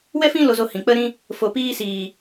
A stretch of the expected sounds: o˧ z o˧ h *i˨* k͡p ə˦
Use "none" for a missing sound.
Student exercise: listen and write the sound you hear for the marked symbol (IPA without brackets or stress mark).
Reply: ĩ˨